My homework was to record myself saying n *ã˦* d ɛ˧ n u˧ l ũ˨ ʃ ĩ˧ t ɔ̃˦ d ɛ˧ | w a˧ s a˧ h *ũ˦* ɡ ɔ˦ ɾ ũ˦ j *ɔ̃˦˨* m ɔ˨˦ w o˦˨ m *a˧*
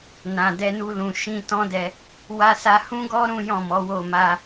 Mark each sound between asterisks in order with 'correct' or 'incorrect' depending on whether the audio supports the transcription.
incorrect: ã˨, correct, correct, correct

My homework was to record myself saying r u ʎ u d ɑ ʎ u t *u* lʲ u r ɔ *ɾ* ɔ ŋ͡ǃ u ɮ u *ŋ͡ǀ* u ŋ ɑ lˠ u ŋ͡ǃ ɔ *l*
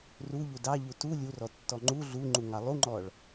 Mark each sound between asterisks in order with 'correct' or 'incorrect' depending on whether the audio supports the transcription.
correct, incorrect: tː, incorrect: ŋ͡ǃ, incorrect: ɭ

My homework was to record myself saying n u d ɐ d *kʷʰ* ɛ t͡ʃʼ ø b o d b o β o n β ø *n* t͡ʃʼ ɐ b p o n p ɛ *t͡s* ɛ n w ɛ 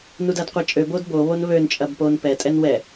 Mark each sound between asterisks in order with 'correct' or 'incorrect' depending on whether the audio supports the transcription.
incorrect: qʷ, correct, incorrect: tʼ

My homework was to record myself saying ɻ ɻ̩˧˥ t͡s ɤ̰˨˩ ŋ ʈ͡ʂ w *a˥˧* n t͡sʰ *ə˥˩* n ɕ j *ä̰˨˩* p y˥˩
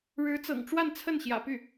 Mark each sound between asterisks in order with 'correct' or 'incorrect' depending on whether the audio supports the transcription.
correct, correct, correct

